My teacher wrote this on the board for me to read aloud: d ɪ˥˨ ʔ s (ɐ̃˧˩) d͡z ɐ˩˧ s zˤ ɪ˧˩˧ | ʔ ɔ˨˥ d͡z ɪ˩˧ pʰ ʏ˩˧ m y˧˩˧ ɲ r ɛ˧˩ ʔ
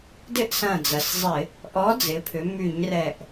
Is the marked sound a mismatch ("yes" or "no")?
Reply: no